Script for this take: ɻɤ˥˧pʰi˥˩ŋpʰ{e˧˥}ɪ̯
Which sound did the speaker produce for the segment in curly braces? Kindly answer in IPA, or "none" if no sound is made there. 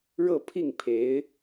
e˧˥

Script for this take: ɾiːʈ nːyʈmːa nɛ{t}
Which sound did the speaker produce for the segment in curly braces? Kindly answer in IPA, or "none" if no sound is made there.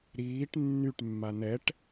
ʈ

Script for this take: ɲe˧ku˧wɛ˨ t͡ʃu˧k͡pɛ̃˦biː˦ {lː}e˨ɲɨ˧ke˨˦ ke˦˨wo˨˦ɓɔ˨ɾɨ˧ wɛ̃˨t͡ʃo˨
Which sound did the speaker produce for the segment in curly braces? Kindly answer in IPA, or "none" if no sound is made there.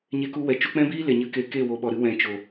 l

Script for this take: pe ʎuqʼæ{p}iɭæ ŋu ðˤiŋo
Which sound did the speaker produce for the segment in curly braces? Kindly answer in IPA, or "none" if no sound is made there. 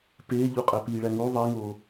p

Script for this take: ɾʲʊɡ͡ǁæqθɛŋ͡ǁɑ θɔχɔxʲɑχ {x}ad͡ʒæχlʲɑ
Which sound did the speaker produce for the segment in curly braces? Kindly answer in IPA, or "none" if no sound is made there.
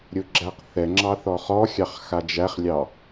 x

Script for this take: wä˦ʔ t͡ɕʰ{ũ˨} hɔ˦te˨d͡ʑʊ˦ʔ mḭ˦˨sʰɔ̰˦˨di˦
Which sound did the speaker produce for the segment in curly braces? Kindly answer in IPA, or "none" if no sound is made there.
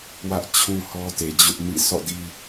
ũ˦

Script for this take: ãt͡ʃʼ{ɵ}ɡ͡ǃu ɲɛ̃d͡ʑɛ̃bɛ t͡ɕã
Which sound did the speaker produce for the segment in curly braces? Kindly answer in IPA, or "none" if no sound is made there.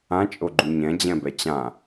o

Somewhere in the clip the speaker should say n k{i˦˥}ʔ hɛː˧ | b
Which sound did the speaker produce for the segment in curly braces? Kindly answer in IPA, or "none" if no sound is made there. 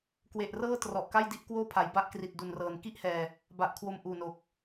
i˥˩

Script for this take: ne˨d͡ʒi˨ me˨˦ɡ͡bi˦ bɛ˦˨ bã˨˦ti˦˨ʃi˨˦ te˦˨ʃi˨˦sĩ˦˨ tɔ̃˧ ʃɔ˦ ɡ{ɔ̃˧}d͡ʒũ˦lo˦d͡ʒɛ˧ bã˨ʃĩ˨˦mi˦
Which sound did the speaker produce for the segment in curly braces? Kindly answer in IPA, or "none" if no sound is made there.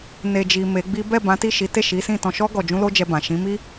ɔ˧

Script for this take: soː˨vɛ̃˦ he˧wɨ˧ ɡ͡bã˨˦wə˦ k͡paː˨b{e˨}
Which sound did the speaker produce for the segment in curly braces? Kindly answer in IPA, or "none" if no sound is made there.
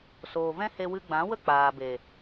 e˨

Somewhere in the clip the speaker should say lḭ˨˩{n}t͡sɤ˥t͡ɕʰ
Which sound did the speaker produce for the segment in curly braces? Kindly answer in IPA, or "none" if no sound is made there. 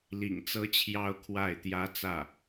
ŋ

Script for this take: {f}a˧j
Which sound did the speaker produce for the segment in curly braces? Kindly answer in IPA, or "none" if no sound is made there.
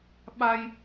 ɓ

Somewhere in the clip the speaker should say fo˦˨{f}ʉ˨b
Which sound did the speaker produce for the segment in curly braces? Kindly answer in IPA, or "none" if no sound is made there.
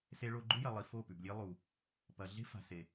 p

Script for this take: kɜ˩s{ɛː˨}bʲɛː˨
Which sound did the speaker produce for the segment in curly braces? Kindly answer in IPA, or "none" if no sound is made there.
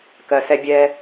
ɛ˨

